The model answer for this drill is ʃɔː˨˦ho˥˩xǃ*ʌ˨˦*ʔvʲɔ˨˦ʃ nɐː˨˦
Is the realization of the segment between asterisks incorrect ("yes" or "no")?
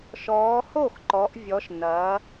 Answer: yes